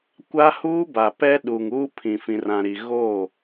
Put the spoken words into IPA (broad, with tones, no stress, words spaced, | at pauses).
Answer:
kʷa˦huː˦ba˨ pɛ˦ ɗu˨ŋuː˦ pʰĩ˨fĩ˨rã˨ɾi˨ ɣoː˦˨